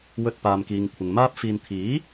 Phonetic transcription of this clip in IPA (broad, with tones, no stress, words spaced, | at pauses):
wɵ˧t̚paː˨mkiː˨ŋ kʷʰɪ˨ŋmaː˥p̚fiː˧n t̪ʰiː˨˥